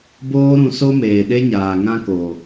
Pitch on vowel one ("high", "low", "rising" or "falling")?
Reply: high